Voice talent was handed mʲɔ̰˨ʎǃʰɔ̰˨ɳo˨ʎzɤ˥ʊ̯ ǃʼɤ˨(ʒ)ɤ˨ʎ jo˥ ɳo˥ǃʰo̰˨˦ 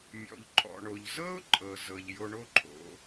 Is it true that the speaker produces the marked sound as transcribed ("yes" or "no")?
no